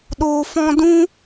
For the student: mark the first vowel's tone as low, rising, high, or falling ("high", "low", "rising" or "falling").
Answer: low